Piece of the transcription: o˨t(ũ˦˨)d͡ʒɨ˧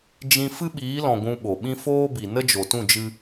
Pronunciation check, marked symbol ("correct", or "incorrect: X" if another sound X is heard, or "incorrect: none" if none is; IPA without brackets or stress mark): correct